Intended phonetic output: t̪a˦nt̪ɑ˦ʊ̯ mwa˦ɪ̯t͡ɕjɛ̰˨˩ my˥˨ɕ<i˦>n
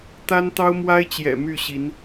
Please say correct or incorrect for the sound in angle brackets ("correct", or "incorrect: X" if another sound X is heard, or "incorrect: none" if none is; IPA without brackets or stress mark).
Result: incorrect: i˨˦